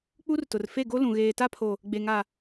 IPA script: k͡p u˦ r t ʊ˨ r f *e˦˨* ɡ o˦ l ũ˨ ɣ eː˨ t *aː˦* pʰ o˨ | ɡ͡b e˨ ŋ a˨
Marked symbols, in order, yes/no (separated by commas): yes, no